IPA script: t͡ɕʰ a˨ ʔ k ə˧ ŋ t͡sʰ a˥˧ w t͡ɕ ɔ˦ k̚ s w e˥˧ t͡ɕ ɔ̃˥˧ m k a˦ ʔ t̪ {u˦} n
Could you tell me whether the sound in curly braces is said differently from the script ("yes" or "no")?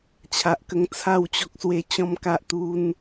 no